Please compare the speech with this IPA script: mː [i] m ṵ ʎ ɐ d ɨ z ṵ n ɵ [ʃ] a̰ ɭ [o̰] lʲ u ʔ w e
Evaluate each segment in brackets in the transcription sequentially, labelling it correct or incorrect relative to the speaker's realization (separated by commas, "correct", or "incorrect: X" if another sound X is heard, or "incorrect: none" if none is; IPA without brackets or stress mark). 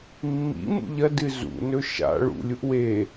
incorrect: ḭ, correct, incorrect: ṵ